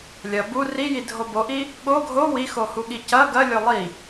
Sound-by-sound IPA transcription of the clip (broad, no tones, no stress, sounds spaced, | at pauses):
lʲ ɐ b u r i j i dʱ o b o ʔ i | ɠ o ɡʱ o w i x o h u ɠ i c ɐ ɡ ɐ lʲ o lˠ i